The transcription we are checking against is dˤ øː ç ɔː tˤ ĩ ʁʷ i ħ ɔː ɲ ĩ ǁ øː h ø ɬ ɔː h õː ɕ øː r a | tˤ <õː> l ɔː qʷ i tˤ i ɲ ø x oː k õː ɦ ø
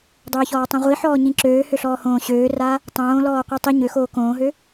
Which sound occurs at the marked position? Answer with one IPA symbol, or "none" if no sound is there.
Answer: õː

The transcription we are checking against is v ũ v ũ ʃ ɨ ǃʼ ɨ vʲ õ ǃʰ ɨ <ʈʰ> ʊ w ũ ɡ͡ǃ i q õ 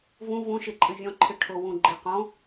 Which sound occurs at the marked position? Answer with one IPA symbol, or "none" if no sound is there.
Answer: ʈʰ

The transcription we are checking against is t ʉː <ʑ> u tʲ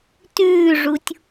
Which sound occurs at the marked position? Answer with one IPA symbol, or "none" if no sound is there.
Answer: ʐ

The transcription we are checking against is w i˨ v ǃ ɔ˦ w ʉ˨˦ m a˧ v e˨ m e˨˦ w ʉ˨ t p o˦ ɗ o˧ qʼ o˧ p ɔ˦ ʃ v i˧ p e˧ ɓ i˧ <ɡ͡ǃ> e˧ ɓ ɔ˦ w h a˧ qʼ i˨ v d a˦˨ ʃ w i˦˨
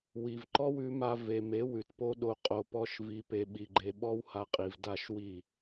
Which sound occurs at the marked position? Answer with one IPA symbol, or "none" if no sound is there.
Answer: ɡ͡ǃ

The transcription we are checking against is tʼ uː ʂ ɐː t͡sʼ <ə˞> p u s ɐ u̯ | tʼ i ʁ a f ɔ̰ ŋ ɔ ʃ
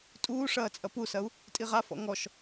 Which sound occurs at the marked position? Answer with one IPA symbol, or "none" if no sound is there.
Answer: ɐ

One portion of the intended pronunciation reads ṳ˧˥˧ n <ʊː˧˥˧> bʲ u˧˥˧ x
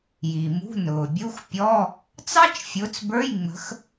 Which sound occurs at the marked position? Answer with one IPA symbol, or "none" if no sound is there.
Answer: ʊː˩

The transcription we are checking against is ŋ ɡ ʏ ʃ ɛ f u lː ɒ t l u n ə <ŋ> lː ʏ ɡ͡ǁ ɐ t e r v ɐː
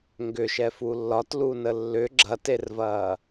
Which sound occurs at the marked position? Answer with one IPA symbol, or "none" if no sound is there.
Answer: none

